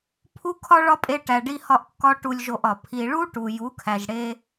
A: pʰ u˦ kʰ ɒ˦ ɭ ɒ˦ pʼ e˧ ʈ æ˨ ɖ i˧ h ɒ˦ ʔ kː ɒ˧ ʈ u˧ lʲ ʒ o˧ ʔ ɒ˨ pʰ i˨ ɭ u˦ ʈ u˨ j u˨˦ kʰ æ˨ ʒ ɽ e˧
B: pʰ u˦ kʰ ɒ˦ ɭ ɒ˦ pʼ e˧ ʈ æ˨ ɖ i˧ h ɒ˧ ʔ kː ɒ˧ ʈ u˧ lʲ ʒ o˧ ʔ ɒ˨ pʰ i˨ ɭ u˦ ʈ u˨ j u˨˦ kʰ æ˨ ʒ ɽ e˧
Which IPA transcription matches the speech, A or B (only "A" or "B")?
B